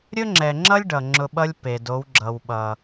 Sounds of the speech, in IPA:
ɾʲ ɵ˦ ŋ͡ǁ ɛ˨ ŋ͡ǁ ʌ˦ lʲ ɖ ʌ˨ ŋ͡ǁ ʊ˧ ɓ ʌ˦ lʲ p e˨ d o˨˦ w ɡ͡ǁ ʌ˨ w ɓ ʌ˨

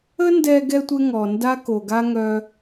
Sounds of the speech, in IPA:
ə˥ n d ɛ˧ ɡ ɛ˧ tʷ e˥ ŋ ɔ˩ n d a˥ k o˩ ɡ a˥ ŋ œ˧

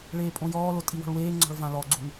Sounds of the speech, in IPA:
ɭ eː pʼ õ j ɔː l o tʼ i w ɔ̤ ɭ w eː ŋ͡ǀ ɔ̤ ɭ v ã l ɔ ɡ͡ǀ u ŋ

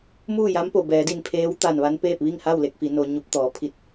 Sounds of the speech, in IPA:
m uː˥˨ j a˧˥ m p o˩ b ɛː˩˧ d i˧˩ n pʰ eː˧˥ w t̪ a˧˩ n ʋ a˧ n p eː˥˨ p̚ ʋ i˥˨ ŋ h a˥˨ w l e˥˨ k̚ f i˩˧ n o˧ ɲ u˧˥ p̚ t̪ ɔː˩˧ pʰ i˧ t̚

